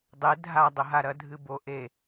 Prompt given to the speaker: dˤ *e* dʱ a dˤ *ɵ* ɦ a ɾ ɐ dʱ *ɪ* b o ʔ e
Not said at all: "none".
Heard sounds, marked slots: e, ɵ, ɨ

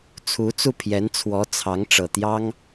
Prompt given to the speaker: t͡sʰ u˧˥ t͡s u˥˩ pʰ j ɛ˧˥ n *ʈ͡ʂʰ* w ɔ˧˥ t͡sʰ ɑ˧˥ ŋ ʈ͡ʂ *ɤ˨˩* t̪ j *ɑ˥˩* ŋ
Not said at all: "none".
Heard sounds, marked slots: t͡sʰ, ɤ˨˩, ɑ˥

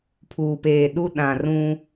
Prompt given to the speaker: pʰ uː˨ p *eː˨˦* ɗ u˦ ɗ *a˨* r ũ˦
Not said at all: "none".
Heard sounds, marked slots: eː˨, ã˨

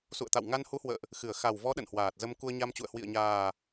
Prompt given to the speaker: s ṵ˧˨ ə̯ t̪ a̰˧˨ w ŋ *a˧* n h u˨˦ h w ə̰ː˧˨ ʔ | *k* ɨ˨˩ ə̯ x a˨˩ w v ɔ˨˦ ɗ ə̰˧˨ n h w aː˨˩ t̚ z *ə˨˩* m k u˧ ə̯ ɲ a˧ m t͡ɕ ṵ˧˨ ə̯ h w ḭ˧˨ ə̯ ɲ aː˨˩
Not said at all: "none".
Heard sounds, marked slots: a˧, x, ə˧

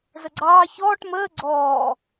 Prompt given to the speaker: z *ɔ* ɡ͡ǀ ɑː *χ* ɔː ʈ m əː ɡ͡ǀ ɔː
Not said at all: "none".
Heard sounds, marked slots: ə, ç

